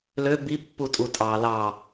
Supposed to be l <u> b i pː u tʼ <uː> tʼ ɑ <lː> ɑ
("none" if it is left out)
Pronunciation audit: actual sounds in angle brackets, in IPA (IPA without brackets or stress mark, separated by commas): ø, u, l